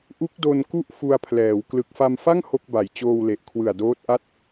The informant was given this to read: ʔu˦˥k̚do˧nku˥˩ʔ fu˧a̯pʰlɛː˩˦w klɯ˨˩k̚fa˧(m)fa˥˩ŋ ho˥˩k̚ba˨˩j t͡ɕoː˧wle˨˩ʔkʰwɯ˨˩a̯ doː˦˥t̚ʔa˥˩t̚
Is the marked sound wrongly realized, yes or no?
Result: no